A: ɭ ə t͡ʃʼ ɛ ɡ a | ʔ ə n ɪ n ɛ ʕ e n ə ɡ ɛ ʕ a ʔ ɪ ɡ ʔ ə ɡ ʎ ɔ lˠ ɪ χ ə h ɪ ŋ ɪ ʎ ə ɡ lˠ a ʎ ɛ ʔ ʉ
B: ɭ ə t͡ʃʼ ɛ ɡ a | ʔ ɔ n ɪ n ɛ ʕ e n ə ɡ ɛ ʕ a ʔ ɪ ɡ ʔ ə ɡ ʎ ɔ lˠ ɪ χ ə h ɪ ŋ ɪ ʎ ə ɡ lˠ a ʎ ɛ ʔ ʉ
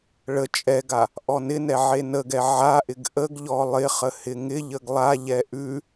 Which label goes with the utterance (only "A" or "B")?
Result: B